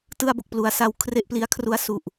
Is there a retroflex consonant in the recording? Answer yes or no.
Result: no